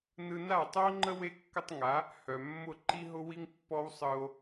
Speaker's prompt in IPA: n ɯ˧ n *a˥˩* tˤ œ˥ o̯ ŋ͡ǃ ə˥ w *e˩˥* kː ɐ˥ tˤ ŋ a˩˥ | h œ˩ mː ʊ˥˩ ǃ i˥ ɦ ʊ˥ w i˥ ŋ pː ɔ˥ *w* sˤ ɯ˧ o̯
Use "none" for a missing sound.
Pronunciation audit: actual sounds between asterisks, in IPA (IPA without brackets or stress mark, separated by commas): a˥˩, e˥, w